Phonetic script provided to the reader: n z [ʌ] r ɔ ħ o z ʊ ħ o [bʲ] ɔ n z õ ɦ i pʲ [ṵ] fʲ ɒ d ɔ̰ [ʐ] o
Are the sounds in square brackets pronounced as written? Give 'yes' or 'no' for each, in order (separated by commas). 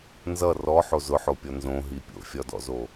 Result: yes, no, no, no